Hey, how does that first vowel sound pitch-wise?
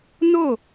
falling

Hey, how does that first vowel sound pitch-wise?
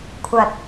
low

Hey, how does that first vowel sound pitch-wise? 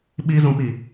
high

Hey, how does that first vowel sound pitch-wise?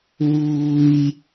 high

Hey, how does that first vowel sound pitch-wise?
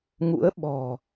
rising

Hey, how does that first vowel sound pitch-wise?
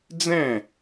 falling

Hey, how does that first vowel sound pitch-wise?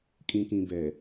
low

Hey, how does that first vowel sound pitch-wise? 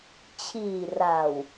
low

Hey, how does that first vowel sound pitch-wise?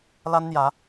high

